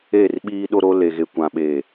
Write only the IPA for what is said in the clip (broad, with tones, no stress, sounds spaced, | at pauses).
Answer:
e˦˨ r ɓ iː˦ ɗ o˦ ɾ o˦ l e˨ ɣ e˨ kʷ ã˨ ɓ eː˨